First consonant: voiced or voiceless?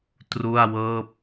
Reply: voiceless